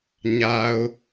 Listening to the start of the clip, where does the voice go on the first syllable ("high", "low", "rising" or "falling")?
low